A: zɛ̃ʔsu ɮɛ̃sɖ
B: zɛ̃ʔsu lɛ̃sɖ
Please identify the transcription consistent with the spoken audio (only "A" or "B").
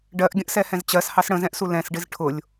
B